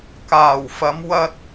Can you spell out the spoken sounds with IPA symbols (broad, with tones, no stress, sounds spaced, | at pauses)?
k aː˨˩ w f ɐ˨˧ m w ɐ˧ t̚